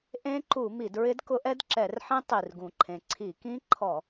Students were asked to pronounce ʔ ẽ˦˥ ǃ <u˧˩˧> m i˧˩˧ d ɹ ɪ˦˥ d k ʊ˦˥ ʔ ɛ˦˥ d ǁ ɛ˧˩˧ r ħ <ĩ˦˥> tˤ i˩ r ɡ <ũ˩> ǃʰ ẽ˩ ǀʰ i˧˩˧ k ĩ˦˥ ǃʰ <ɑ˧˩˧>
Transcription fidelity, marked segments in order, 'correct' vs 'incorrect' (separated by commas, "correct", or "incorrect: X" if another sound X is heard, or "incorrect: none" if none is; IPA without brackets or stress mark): correct, incorrect: ẽ˦˥, correct, incorrect: ɔ˧˩˧